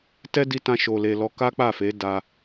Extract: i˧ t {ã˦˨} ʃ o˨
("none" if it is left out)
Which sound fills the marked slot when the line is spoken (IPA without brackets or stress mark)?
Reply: ã˧